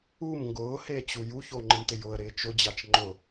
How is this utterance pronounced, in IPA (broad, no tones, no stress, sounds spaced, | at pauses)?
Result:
u m ŋ ɡ ʊː h eː t͡ɕ u j u ç o ŋ͡ǃ ɪ m t ɪ j ʊ ə̯ ɾ ɪː t͡ʃ ʊ d͡ʑ a t͡ʃ ŋ͡ǃ ʊ